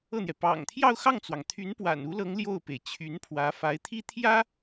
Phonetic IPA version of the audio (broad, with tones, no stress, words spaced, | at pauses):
ɤ˥˩n̪jɛ˩ pɑ̰˨˩ŋt̪ʰjɑ˥˧ʊ̯xɑ˥˩ŋt͡swɑ˩ŋ t̪ʰy˧˥npwa̰˨˩n u˧˥lɤ˧˥ŋ ljo˥˩ʊ̯pe˩ɪ̯ t͡ɕʰy˧˥npʰwä˧˥fa˧˥ɪ̯ t̪ʰi˥t̪ʰjä˥